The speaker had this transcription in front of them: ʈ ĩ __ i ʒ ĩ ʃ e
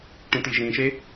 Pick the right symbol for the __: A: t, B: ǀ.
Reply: A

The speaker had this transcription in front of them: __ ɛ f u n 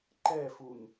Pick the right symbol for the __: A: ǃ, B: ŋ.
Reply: A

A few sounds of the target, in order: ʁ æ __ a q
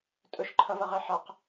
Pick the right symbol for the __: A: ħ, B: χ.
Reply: A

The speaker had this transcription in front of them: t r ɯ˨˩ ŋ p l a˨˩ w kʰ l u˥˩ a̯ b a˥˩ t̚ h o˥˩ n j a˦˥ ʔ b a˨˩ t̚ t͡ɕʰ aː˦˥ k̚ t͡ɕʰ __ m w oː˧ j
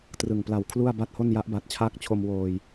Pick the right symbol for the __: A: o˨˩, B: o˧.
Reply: B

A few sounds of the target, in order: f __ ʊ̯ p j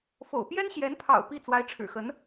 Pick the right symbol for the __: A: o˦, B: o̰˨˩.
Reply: B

